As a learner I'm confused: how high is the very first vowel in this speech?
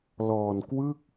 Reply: mid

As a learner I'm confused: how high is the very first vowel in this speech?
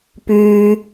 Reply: high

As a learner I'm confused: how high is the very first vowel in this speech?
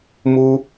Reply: high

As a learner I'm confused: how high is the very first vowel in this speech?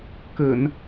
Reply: mid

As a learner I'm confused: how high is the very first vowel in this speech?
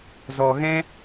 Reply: mid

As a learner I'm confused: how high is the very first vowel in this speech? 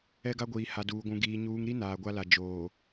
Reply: mid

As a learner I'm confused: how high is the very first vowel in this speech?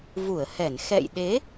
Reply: high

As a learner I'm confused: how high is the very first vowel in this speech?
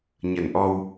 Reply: mid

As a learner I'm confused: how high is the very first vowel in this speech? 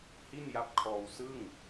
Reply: high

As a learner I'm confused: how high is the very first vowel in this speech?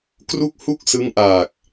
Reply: high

